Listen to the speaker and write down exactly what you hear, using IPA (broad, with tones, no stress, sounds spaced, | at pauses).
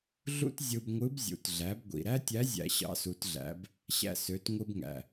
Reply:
ɮ ṵ˥ t zʲ ɯ˧ b ŋʷ ɯ˧˥ b zʲ ṵ˩˧ t ɮ æ˩˧ b ɡʷ ḭ˩ ɾ æ˥ tʲ æ˧˥ zʲ æ̰˧ ɕ ɑ̰˧˥ s u˩˧ t ɮ æ̰˩˧ b | ɕ æ̰˧ s ø˩˧ t ŋʷ ɯ˧ b ŋ æ̰˩